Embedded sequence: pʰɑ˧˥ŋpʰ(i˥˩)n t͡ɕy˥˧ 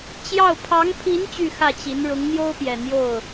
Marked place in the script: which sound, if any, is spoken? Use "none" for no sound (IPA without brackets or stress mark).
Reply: i˧˥